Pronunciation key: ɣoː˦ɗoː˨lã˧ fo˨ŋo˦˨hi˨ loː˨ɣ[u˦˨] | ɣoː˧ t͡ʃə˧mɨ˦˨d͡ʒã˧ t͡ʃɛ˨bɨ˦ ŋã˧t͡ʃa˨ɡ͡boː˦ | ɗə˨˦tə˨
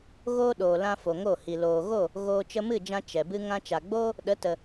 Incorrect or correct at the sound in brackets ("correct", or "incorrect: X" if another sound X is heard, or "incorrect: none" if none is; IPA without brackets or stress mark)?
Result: incorrect: o˦˨